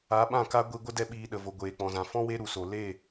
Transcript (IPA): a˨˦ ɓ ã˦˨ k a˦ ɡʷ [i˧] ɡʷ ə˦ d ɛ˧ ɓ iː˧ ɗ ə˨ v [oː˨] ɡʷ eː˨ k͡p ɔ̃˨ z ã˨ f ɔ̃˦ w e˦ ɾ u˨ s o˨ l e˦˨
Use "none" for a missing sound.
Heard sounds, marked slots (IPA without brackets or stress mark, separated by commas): i˧, o˨